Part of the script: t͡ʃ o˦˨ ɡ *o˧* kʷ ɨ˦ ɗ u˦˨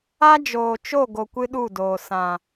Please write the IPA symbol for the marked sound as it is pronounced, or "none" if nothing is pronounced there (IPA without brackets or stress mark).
o˧